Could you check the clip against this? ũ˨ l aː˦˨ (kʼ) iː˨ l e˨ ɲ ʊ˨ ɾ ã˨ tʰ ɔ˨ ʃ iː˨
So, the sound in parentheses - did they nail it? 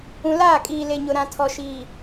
yes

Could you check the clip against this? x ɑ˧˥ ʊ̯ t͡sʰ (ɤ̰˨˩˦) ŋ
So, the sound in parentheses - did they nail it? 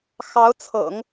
yes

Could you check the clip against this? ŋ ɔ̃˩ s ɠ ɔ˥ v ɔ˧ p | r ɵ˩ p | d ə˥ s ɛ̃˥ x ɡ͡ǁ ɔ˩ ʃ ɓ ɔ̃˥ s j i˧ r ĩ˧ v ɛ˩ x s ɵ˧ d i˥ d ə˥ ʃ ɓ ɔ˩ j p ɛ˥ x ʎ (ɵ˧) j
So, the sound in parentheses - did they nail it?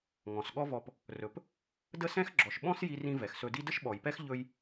yes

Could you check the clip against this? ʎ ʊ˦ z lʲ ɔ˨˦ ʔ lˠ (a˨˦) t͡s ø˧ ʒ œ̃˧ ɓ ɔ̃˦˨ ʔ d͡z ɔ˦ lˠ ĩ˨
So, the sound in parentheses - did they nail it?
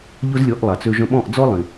no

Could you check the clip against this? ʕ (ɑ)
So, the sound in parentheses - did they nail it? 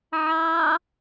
yes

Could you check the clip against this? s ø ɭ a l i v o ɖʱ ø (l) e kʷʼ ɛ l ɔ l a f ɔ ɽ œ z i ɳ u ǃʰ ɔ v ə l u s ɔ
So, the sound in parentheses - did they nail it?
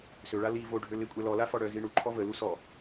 yes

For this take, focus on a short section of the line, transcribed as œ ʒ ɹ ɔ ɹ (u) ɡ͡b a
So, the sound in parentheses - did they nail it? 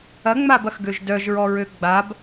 no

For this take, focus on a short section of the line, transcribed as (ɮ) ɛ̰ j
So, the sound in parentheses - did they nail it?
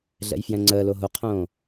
yes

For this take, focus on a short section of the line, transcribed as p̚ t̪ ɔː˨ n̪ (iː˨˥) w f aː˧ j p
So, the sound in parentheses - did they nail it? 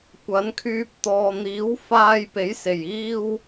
yes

